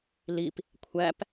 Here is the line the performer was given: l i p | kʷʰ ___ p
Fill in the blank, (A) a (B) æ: B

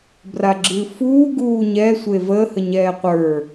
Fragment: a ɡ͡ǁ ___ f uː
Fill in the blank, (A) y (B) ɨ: B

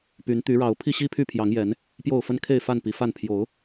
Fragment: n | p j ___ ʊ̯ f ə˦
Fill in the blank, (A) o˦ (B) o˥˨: B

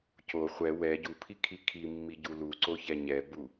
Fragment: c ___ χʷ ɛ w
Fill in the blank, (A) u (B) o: B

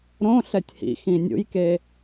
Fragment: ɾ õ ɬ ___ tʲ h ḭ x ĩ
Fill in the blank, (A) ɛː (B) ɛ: B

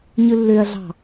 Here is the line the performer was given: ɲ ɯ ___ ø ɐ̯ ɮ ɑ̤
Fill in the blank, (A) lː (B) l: A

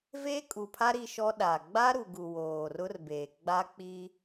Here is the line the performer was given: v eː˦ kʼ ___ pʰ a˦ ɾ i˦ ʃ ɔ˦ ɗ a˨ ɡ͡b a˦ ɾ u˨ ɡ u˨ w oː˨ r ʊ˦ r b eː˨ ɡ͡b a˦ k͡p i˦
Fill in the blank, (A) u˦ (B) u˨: B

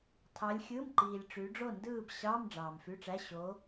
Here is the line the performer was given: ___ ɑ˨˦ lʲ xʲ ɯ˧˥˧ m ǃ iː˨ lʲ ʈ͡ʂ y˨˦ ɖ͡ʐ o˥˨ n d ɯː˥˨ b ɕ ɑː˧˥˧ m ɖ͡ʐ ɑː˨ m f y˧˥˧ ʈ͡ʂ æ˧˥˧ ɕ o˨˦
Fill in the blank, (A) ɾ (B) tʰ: B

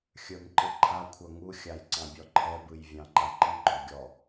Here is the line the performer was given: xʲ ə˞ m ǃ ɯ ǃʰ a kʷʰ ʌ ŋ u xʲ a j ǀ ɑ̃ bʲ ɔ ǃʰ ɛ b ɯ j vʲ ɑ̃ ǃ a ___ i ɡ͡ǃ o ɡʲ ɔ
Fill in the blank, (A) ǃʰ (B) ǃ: B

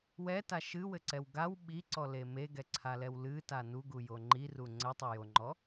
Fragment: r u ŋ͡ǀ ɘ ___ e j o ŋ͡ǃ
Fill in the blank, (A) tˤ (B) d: A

